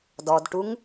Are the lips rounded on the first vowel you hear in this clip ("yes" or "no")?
yes